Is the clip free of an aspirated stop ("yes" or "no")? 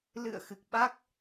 yes